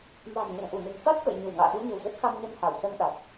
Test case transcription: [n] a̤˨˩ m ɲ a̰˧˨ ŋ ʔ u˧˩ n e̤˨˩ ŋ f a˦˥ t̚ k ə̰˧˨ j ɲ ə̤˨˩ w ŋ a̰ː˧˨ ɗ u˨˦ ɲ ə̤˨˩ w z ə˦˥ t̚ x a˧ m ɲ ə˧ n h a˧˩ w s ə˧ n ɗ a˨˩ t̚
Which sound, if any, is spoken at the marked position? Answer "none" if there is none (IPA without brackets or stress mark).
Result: m